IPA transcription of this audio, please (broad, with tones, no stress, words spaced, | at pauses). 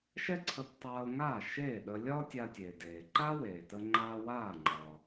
ʃɛ˥ǀʰə˧ptˤaː˧o̯ŋaː˥˩ ʃeː˥˩ɗə˧ lʲɒː˥tʲa˧tʲeː˩deː˩ ǃa˥weː˩tə˧ŋ͡ǃaː˧ waː˥˩ŋ͡ǃɒː˩